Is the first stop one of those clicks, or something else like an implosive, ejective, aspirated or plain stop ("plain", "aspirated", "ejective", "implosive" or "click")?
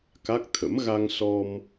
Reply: plain